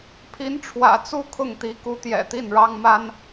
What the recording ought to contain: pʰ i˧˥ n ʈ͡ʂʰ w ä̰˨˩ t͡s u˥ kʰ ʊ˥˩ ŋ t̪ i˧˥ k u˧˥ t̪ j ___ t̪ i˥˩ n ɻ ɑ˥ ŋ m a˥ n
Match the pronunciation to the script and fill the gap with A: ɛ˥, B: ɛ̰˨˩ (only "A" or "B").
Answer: B